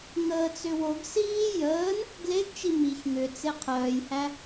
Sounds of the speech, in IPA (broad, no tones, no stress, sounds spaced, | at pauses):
ŋ əː t͡s ʏ w o ɡ s iː j əː n | ɡ l e ɡ t͡ʃ i m i ç ŋ ʏ t͡s e qʰ œː j h æ